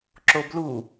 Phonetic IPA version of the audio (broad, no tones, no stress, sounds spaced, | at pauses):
ǁ o b l u